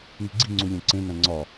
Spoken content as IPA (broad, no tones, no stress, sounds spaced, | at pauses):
ŋ i̤ ɡ͡ǀ i̤ ŋ͡ǀ u lʲ æ̃ ǀ ẽ n æ̃ ŋ͡ǀ ɒ